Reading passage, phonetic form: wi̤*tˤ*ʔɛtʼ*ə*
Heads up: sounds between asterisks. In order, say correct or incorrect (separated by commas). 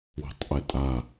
correct, incorrect